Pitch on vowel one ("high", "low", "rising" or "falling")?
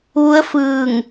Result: rising